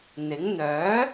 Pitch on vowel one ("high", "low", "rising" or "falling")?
rising